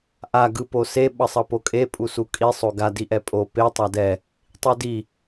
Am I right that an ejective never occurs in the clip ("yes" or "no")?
no